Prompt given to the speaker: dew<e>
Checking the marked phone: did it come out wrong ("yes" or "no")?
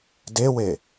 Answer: no